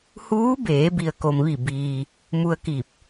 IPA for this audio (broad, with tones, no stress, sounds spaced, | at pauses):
h uː˧˥ b eː˩˧ b i˩ ə̯ k o˩ m ʋ i˧˩ b iː˩ | m u˧ ə̯ k i˧˩ p̚